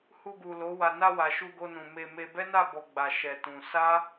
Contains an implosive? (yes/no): no